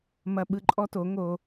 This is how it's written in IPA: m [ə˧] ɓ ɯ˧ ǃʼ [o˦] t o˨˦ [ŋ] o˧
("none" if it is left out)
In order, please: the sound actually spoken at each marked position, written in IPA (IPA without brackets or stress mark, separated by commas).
ɐ˧, ɔ˦, ŋ